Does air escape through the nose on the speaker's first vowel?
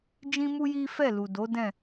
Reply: yes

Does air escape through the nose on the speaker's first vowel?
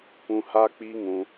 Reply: yes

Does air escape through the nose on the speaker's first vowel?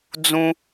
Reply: yes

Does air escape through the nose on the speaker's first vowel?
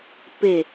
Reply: no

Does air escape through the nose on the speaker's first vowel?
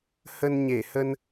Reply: no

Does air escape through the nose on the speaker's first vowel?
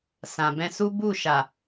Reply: yes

